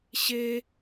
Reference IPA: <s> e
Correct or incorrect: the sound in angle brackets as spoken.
incorrect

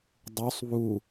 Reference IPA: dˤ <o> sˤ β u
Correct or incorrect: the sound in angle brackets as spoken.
incorrect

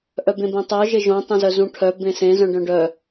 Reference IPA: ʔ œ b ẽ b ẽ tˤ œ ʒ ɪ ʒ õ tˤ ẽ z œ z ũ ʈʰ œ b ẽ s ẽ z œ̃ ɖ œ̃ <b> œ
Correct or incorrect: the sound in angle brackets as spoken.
incorrect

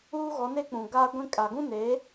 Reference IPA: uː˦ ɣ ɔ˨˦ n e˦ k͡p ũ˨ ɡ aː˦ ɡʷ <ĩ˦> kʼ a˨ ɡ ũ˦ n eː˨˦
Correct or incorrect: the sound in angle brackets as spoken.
correct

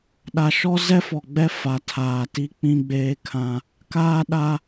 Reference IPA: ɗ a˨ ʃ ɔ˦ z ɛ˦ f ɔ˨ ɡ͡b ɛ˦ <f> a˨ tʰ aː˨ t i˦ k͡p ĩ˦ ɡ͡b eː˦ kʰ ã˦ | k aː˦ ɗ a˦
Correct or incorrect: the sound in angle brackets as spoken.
correct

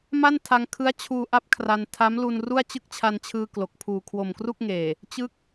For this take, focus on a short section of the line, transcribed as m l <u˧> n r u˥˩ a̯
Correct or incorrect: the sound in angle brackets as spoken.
correct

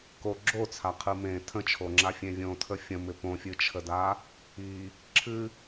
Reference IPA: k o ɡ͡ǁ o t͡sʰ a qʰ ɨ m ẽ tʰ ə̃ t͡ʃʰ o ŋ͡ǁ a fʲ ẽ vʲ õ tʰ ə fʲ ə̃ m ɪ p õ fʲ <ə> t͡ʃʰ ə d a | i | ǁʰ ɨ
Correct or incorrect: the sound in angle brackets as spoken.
incorrect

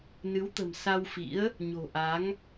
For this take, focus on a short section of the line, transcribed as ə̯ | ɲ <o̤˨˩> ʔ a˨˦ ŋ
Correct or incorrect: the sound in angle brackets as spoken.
correct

